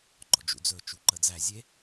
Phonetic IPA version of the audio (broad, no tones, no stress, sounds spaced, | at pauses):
ɡ͡ǃ ɔ̰ d͡ʒ ṵ d͡z ɵ t͡ʃ u ǃ ə d͡z æ zʲ e